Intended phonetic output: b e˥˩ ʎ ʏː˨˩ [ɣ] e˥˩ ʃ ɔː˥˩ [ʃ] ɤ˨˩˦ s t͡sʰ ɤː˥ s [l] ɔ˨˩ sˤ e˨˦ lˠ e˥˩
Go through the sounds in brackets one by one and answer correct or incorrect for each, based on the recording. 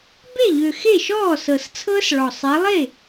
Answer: incorrect: x, incorrect: s, incorrect: ɭ

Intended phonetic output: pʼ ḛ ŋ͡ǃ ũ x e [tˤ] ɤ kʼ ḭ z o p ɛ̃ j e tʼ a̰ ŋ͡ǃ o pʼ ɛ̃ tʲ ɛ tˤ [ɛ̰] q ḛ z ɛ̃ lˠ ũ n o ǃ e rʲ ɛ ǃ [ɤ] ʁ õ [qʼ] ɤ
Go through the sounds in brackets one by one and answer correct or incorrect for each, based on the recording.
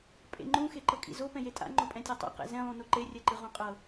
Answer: incorrect: ǃ, correct, incorrect: ɯ, correct

